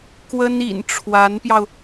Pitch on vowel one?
high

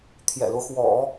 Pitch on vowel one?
low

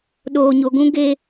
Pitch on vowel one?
low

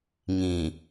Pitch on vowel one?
low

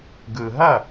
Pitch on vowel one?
low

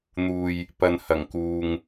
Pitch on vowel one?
low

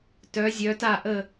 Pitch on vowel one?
rising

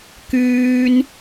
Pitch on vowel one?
high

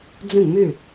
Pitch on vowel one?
falling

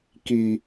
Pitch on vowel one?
low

